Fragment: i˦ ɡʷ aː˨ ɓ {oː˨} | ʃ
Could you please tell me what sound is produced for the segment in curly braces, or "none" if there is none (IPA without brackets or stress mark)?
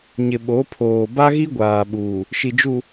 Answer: uː˨